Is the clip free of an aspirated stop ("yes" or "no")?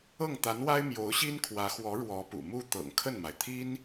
no